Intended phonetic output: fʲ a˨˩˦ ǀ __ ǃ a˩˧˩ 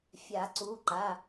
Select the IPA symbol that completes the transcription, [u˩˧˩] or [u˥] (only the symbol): u˩˧˩